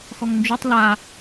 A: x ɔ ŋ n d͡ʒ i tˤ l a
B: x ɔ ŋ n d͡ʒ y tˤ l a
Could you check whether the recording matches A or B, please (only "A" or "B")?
B